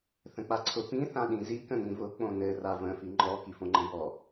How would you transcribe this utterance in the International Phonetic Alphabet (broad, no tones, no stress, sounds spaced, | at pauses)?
θ ə̃ k͡p a ǀʰ ʊ p ĩ θ ã ɗ ĩ z i k ə̃ n ĩ v ʊ k͡p õ n ɘ r a v ə̃ f i ŋ͡ǃ ɔ k i f õ ŋ͡ǃ ə̃ b ɔ